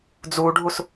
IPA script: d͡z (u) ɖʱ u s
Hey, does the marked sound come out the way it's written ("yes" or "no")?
yes